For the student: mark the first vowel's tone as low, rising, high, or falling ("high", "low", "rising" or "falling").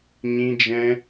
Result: high